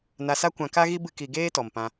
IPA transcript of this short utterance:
n a˧ s a˦ kʷ ã˧ k a˦ ɣ i˦ b ɨ˦ k i˧ ɡ eː˦ t ɔ˨ m p ã˧

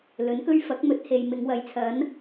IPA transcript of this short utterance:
l ɵ˨˥ n k ɵ˥ ɥ f ɐ˨˥ k̚ m ɵ˨˥ t̚ h e˨ j m ɪ˨˧ ŋ w ɐ˨˧ j t͡sʰ ɐ˨˥ n

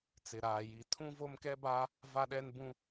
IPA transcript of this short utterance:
t͡s ɪ˨ ɾ aː˨ j i˨ tʰ ũ˦ v o˦ m k ɛ˦ b a˦ | v a˦ ɗ ɛ˦ n b ũ˦

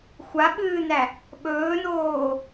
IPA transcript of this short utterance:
xʷ a ɓ ɨː n æ | ɓ ɵː n oː

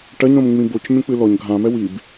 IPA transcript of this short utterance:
ʈ ɐ ɲ ɾ õ m ŋ͡m ĩ b o c mʲ õ k͡p ɨ l ɔ ɲ ɡʱ ã m ɛ w i b

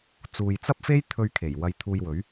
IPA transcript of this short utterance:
t͡s uː˨ j t͡s ɐ˥ p̚ f e˥ j t̪ʰ ɵ˧ ɥ kʰ e˨˩ j w ɐ˧ j t̪ʰ uː˧ j w ɵ˨˥ ɥ

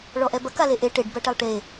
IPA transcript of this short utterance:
ɭ ɔ ʔ ɛ b ɐ k a l e ʔ e ʈ e ɖ b ɐ ʈ ɛ lˠ ʈ e

